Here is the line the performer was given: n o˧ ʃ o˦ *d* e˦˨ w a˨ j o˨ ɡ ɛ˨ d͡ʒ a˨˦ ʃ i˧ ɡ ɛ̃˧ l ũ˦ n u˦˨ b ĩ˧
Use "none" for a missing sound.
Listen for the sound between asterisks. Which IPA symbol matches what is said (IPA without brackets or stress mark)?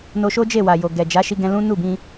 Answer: d͡ʒ